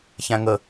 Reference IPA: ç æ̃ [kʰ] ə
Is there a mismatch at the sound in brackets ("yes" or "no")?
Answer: yes